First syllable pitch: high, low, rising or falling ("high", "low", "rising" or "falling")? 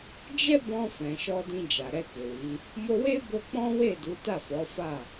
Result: high